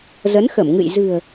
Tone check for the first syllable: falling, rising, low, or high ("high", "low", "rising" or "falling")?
rising